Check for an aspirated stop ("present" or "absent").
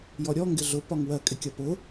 absent